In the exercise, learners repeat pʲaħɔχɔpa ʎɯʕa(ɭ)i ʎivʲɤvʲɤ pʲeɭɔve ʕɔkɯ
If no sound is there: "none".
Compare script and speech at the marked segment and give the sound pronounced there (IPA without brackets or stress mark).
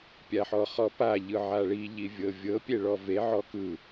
ɭ